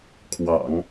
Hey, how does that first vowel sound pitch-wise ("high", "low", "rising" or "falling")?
low